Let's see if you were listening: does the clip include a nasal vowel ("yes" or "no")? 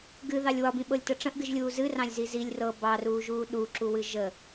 yes